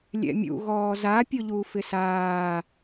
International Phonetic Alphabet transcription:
lʲ ɛ̰ mʲ ṵ ɣ ɔː z a pʲ o ʎ uː f ɪ s aː

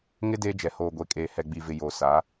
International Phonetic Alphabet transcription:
ŋ ɪ˦ d eː˦ d͡ʒ ɛ˨ h oː˨ ɡʷ e˨ kʼ eː˨ h ɛ˨ ɡ͡b i˨ v ɪ˨ j o˨ s a˨˦

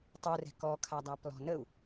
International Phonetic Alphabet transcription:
tˤ u r ɛ̤ k ɔ kʰ a dˤ a p l ɔ̤ n ə u̯

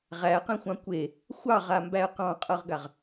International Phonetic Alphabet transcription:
ʁ æ q ẽ xʷ ɑ̃ kʷ e | xʷ ɑ ʁ a m b æ ə̯ q ɑ̃ qʼ ɤ ʁ ɡ a ʁ

